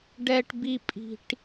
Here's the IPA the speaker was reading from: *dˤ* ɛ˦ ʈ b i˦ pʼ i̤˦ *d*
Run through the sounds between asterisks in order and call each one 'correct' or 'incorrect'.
incorrect, incorrect

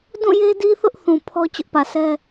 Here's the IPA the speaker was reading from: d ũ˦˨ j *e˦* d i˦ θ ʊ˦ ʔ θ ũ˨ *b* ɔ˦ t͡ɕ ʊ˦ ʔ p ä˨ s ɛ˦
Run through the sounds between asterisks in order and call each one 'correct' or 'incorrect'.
correct, incorrect

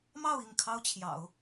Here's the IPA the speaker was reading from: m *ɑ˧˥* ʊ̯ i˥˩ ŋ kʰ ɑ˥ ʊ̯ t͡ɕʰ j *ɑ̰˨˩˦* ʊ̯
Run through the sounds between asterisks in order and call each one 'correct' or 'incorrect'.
incorrect, correct

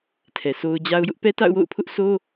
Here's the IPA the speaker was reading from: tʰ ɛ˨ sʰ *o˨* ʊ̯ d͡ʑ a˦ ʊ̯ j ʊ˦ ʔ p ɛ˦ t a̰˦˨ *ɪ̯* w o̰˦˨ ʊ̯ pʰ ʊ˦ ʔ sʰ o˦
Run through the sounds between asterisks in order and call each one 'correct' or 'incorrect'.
incorrect, incorrect

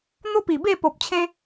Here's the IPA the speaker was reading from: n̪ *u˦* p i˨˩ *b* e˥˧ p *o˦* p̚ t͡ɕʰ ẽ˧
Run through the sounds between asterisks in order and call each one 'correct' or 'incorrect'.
incorrect, correct, incorrect

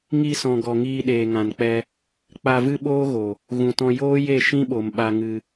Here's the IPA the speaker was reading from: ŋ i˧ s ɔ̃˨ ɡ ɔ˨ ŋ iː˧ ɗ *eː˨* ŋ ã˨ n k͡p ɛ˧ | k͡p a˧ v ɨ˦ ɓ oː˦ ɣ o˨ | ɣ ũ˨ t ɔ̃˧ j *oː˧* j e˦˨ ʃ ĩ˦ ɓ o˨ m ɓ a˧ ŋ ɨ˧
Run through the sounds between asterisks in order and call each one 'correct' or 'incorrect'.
correct, incorrect

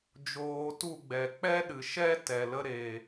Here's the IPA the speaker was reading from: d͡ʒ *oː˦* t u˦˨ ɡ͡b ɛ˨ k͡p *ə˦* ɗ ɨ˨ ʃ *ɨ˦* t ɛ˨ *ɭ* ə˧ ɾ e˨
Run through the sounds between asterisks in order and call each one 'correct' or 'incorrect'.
incorrect, incorrect, incorrect, incorrect

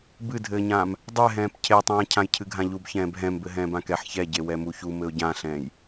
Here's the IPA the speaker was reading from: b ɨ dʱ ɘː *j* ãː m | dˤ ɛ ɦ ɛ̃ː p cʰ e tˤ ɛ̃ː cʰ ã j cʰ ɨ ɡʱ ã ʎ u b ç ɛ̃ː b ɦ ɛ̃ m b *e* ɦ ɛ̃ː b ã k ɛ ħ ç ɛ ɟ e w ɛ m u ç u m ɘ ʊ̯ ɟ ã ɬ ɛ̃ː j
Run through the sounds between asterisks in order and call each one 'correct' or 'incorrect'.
incorrect, incorrect

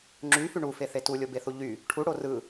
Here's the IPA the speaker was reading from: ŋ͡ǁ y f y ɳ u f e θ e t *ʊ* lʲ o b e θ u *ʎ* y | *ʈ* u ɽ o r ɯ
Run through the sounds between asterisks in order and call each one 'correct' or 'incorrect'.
incorrect, correct, incorrect

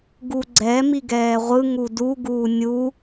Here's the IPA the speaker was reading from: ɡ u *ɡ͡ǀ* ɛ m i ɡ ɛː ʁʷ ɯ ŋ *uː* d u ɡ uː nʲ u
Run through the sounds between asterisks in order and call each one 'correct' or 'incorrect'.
correct, incorrect

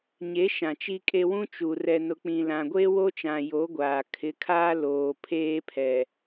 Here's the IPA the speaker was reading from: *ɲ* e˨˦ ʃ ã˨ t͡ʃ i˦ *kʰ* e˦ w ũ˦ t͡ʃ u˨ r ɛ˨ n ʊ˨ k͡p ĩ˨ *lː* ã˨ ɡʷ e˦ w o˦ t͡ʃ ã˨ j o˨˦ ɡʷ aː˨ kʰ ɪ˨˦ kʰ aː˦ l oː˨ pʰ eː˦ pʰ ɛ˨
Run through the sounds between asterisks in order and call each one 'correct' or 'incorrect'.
correct, incorrect, incorrect

